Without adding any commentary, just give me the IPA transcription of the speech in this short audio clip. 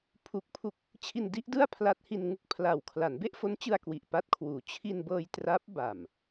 pʰ u˦˥ k̚ pʰ u˥˩ k̚ | t͡ɕʰ i˧ n d i˦˥ ʔ d ɯ˥˩ a̯ pʰ l a˦˥ t̚ h i˧ n ŋ u˥˩ k̚ pʰ l a˨˩ w kʰ l a˩˦ n b e˥˩ ʔ f o˦˥ n t͡ɕ ɯ˧ a̯ k w i˨˩ ʔ p a˥˩ t̚ kʰ w uː˩˦ t͡ɕʰ i˧ n b ɤː˧ j t r a˦˥ p̚ b a˨˩ m

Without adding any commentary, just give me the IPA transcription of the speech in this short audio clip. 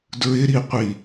d ɹ ɪ ɾ i qʷ i

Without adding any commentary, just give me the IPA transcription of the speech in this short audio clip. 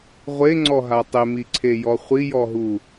ʁʷ e ŋ͡ǀ ɔ ɦ a tˤ ɪ m i ǀʰ e j ɔ χʷ i j ɔ ɦ u

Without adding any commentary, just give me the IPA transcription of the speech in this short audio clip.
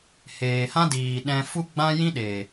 h eː˨ h ã˦ d iː˨ ɗ ɛ̃˧ f u˦ ɡ͡b ã˦ j ĩ˦ ɗ e˨

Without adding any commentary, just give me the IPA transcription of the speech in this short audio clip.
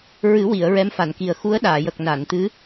ɹ ɨ˨˩˦ w i˨˩˨ ə̯ ɹ ɛ˧˥ m f a˨˩˨ n k i˨˩ ə̯ x u˧˥ ə̯ ɗ aː˨˩˨ j ə˨˩ k̚ n a˨˩˨ n t̪ ɨ˧˥

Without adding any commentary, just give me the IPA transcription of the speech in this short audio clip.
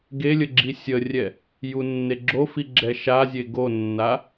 ɡ e lʲ ə ɡ͡ǁ i sʲ ə rʲ ɛ | j u nː e ɡ͡ǁ o f i ɡ͡ǁ ɛ ʃ a zʲ e ɡ o nː a

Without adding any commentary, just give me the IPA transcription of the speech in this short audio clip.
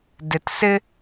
d ɪ t s ɪ

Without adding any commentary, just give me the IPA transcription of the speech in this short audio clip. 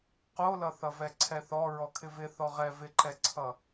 q o l ʌ θ ʌ v ɛ ǀʰ ɛ θ ɔ ɹ ɔ kʰ ɪ v ɪ θ ɔ ʁ ɛ v ɪ ǃ ɛ ǀʰ ʌ

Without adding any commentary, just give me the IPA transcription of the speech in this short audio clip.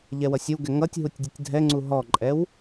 ʎ ɛ w ʌ sʲ ʌ w ɡ ɛ ŋ ʌ tʲ ɦ u tʲ dʲ ə tʲ dʱ ɛ ŋ͡ǀ u ɦ ɔ ǃʼ ɛ w

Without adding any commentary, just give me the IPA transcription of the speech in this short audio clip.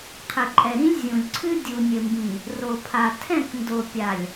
qʰ ɘ˨ ǃʼ ɛ˨ ɾ ĩ˦ lʲ zʲ ũ˨ lʲ ǀʰ ɨ˦ dʲ u˨ nʲ ɘ˨ m b ĩ˨ | r o˨ pʰ a˨ tʰ ɛ̃˦˨ k n d o˨ pʲ a˨ lʲ

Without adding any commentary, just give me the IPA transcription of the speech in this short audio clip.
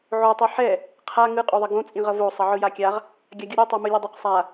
ʕ o tˤ i ħ ɛ | qʰ a ŋ ɯ qʼ o ðˤ ʌ ɡ õ t͡sʼ ĩ ʁ ʌ v o sˤ ʌ ʕ ɯ j a kʲ a ʁ | ɡʲ a ɡʲ u ɾʲ u tˤ o m ɯ lʲ ʌ dˤ ʌ q sˤ a

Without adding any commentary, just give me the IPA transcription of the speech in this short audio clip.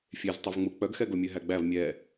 fʲ e z tˤ ø v ŋ͡m u k͡p œ ɡ x ɛ ɡ o mʲ ø ɦ æ ɡ͡b æ v mʲ ɛ

